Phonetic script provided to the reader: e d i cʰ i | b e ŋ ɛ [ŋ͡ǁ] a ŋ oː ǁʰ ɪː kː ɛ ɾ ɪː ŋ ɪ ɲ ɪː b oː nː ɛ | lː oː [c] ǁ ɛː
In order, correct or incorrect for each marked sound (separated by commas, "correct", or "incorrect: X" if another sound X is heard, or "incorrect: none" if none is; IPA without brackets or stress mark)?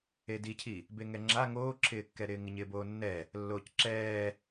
correct, correct